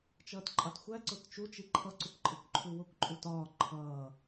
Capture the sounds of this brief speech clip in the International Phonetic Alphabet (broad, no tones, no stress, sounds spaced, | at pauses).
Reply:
t͡ʃ ʌː t ǃʼ ɑ t xʷ æ ǀ ʊ t t͡ʃ u t͡ʃ i ǃʰ ʌ ǀ u kʷ ǃʼ ɪ kʷ ǃʰ u w ʊ kʷ ǃʼ u t ɒː ǃʰ ʌː